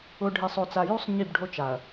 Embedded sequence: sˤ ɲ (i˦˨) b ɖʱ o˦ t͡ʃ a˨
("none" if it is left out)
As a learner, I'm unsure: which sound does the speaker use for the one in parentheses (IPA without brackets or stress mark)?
i˦˨